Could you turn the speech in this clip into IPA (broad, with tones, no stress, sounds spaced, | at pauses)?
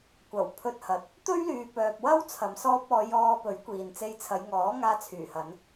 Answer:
kʷ ɐ˨˩ w pʰ ɵ˧ t̚ h ɐ˨ t̚ | t̪ ɵ˥ ɥ l yː˨ p œː˨ p̚ w ɐ˥ w t͡sʰ ɐ˨ m s ɔː˧ p̚ ɔː˨˧ j ɔː˧ p ɵ˨˥ ɥ kʷ iː˨ n t͡s e˧ j t͡sʰ ɐ˨˧ j ŋ ɔː˨˥ ŋ aː˧ t͡sʰ yː˨˩ h ɐ˨˧ n